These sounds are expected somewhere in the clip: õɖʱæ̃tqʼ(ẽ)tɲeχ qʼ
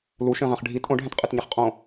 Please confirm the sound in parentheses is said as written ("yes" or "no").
no